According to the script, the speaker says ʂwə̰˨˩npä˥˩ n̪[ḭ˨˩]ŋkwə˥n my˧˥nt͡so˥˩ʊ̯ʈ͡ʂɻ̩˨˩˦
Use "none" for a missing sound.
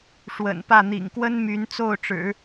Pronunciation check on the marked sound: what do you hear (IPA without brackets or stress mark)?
ḭ˨˩